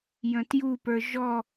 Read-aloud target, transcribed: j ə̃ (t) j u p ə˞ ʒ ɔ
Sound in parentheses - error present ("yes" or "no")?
no